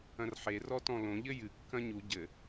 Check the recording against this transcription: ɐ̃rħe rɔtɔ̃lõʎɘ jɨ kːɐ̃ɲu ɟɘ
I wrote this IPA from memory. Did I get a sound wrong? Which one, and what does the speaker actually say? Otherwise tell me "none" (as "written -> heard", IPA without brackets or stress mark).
none